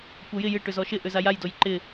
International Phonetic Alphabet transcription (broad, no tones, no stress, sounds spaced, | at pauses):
kʷ ɐ j ɪ j ɪ ʈ ʏ z ɔ ʃ ɪ ʔ ʏ z a j a j d o j ǃ ɪ